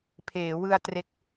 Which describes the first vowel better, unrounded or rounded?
unrounded